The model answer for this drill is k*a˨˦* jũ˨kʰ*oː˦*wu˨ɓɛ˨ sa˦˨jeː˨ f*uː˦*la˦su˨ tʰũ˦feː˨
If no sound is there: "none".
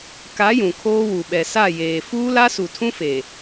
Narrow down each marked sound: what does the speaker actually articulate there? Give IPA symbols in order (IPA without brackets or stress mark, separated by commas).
a˨˦, oː˦, uː˦